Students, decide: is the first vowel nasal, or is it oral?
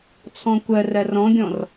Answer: nasal